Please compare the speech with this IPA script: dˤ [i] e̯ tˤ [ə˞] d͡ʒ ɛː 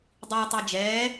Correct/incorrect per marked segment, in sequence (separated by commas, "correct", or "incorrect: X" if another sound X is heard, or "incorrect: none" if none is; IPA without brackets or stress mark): correct, correct